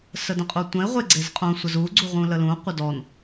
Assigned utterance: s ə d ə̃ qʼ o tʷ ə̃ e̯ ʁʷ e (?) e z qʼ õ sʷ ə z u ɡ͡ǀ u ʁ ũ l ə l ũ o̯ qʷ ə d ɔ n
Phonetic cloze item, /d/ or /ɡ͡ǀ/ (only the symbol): ɡ͡ǀ